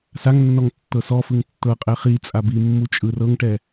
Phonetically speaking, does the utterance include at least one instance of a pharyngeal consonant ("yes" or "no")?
no